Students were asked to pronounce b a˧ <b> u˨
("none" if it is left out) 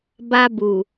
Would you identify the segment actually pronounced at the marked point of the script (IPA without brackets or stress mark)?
b